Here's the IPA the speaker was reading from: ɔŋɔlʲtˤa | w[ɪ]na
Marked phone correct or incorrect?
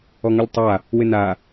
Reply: correct